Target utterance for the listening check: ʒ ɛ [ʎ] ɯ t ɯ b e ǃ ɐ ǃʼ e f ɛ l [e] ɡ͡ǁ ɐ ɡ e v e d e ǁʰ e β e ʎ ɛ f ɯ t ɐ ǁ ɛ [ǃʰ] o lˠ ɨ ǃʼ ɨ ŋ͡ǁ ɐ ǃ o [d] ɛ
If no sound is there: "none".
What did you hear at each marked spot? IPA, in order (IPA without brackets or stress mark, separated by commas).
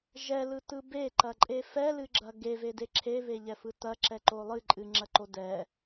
l, ɨ, ǃ, d